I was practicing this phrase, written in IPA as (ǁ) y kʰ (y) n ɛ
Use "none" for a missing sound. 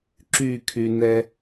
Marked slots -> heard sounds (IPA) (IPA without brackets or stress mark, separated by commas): ǁ, y